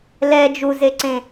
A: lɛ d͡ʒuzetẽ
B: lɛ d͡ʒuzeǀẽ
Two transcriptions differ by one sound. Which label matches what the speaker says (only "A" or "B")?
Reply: B